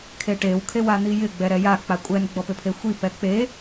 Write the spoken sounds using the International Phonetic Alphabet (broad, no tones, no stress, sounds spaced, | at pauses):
kʰ e ʈ e w kʰ e w a n̪ i j ɪ ɡ͡b ɛ ɾ ɛ j a k͡p a kʷʼ ɛ n ɡ͡b ɔ p ʏ pʰ e xʷ i p ɛ k͡p e